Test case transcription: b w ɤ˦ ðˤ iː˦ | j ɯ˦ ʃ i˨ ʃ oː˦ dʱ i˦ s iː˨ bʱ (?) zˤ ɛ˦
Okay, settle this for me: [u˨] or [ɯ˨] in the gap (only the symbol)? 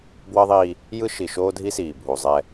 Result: u˨